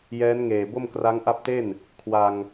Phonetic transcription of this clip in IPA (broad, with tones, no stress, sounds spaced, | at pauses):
j ɛː˦˥ n ŋ eː˨˩ b o˥˩ m k r a˦˥ ŋ ʔ a˦˥ p̚ t e˥˩ n | kʰ w a˧ ŋ